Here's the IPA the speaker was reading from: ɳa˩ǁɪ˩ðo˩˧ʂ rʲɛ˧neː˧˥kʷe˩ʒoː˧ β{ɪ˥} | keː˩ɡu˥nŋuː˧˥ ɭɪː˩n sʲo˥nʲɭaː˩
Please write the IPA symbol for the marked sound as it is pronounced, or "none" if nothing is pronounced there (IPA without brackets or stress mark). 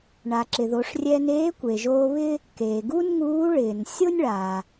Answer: ɪ˥